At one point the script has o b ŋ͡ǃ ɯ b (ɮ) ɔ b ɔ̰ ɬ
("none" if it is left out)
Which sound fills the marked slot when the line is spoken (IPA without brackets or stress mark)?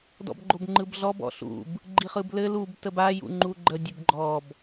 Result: ɮ